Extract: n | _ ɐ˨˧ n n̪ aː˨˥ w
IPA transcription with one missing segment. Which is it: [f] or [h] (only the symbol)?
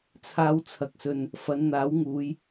f